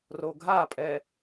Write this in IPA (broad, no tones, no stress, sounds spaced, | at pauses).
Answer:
r o ɡʱ a pʼ ɛ